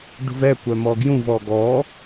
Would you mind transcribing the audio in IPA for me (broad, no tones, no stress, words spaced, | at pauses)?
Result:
ɖṳvɛ kʷœmɔɡjũv ɔɡɔ